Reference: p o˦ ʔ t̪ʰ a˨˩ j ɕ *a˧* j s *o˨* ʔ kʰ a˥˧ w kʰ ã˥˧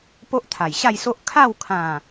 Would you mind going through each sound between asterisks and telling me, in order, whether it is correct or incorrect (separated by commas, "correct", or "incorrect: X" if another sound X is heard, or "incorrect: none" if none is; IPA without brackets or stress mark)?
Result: incorrect: a˥˧, incorrect: o˦